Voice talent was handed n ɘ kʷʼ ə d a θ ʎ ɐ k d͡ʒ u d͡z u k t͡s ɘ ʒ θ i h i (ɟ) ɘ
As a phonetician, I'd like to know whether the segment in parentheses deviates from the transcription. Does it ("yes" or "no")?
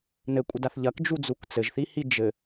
yes